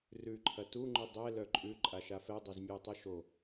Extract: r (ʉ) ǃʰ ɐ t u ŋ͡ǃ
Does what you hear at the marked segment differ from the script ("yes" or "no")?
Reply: no